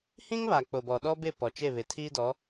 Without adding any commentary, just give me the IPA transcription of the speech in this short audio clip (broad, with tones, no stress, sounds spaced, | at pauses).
h ĩ˦ ŋ β aː˨ k͡p o˨ b ɔ˨ ɗ ɔ˦ b ɪ˦˨ p ɔ˨ t͡ʃ e˦˨ β ɪ˨ tʰ iː˦ d ɔ˨˦